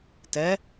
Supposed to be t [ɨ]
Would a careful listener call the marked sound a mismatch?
yes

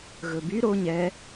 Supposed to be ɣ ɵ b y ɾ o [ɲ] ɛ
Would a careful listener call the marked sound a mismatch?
no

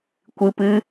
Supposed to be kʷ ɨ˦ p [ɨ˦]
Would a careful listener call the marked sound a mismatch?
no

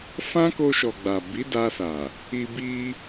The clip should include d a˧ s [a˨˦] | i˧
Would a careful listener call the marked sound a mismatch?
yes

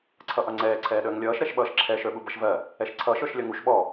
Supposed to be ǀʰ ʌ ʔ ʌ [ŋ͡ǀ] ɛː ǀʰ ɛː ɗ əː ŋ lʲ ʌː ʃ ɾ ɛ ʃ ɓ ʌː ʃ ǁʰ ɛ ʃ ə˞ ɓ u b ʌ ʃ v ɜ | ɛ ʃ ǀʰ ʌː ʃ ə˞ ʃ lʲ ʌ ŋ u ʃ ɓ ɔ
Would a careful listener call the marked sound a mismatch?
no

